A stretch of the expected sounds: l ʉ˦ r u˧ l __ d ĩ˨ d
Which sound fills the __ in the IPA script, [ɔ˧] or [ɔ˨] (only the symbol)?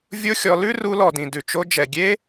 ɔ˨